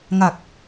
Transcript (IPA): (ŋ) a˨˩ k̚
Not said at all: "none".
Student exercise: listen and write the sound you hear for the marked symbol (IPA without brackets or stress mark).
ŋ